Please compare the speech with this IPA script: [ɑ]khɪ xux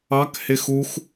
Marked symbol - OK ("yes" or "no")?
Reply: yes